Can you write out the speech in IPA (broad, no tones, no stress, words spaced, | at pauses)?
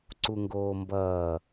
ǀuŋɡoːmbʌː